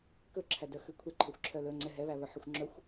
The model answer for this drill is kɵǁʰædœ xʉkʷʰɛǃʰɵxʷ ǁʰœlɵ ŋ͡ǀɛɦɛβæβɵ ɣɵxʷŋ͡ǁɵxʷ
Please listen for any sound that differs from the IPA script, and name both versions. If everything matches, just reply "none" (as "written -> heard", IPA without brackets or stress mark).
ɣ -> ħ